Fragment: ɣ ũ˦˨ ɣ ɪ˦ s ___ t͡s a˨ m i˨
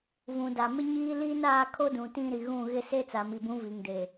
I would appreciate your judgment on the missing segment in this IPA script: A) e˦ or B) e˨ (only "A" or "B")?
A